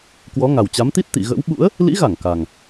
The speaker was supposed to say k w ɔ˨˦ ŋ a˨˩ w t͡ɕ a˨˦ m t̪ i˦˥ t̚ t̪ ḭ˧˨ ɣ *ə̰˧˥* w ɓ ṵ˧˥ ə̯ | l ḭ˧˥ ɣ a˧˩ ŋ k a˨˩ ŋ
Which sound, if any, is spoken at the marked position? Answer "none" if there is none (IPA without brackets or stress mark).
ə̰˧˥